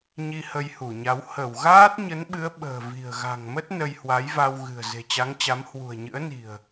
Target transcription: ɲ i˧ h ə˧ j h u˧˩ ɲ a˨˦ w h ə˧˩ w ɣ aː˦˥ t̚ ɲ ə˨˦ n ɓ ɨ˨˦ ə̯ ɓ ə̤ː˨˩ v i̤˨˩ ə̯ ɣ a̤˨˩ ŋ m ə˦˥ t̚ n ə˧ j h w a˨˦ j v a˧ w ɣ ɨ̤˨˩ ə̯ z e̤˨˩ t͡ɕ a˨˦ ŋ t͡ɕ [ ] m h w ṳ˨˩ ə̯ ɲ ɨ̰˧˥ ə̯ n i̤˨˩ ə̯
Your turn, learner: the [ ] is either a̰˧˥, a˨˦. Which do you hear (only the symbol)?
a˨˦